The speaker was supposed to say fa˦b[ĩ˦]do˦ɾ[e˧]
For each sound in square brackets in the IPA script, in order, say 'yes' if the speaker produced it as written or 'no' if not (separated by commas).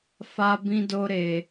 yes, yes